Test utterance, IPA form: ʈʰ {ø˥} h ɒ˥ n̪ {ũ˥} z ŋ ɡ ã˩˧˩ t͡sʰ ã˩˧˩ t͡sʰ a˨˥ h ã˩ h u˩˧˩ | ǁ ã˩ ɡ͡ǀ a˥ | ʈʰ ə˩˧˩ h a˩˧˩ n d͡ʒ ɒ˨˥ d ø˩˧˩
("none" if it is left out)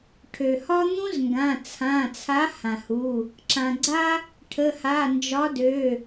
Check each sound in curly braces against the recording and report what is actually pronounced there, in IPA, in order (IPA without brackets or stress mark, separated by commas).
ø˩, ũ˥